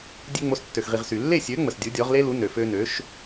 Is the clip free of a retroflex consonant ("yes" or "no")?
yes